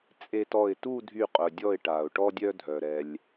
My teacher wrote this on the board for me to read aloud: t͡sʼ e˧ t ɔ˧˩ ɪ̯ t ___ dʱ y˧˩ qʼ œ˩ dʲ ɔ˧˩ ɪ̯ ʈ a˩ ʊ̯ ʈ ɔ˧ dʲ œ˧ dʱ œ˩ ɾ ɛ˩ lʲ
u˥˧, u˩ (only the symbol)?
u˥˧